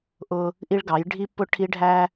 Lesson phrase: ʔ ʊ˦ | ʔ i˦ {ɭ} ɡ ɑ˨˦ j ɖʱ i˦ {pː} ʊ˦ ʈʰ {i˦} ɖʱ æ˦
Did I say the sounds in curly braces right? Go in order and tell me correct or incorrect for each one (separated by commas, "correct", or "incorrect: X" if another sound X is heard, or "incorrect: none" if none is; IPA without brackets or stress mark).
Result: correct, correct, correct